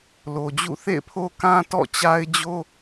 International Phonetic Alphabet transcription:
lo˨d͡ʑṵ˦˨ θḛ˦˨ɪ̯pʰo˦kã˦ tɔ̰˦˨t͡ɕa˦ɪ̯d͡ʑo˦

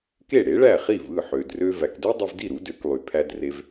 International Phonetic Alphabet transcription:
ke˥˩ɽe˩˥ɭæ˥˩χi˥˩v ɯ˥˩ħø˩drø˧ væ˩kdø˥dˤɯ˧vdi˥˩ ɾu˩˥dø˩˥klˠy˩ pʰæ˧dre˧v

